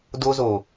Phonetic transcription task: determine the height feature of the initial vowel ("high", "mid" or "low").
mid